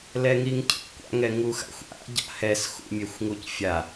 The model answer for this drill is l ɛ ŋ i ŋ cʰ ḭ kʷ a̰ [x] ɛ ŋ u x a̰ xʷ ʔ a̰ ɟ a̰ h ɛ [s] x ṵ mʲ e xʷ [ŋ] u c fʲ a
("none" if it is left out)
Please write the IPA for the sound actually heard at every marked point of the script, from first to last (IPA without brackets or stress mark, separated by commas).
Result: ŋ, s, ŋ